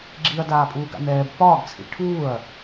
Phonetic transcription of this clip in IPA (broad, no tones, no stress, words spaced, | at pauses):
ɡ͡ǁiɐ̯daːpʼuːɡa̰ nɛːb pɒːɡt͡sʰḭ ʈʰuːɐ̯